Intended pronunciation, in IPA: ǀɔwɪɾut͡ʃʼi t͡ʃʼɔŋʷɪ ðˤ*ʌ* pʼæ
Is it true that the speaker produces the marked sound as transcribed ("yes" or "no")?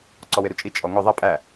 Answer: yes